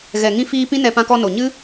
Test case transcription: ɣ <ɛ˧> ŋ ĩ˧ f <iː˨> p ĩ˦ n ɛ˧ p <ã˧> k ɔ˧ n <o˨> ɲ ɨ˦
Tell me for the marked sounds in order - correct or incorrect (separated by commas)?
incorrect, incorrect, correct, correct